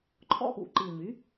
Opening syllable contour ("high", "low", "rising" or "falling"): high